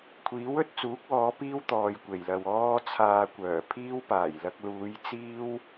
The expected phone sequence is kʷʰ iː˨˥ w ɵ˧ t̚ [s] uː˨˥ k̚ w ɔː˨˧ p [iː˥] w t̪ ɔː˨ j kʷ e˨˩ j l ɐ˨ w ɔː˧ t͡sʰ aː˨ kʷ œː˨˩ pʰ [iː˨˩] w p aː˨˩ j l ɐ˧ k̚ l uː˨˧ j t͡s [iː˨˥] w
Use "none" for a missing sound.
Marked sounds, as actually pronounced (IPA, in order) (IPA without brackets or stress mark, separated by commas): t͡s, iː˥, iː˥, iː˥